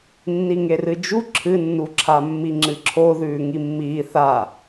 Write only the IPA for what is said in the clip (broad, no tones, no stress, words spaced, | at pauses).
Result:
nːiŋerɨd͡ʒu ǁʰɨnːuǁʰa mːiŋ͡ǁɨǁʰoðʉː ŋimːiː θa